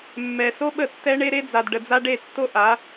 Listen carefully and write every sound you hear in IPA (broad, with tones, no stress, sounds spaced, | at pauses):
mː ɛ˨ s o˦ ɓ ə˦˨ tː ɛ˦ ɳ e˦ ɾ e˦ d͡z a˨ d ɖ ə˨ d͡z a˦ ɖ e˦˨ tː o˦ ʔ a˨˦